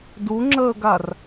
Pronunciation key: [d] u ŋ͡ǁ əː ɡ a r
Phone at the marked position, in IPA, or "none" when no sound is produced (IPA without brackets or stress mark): d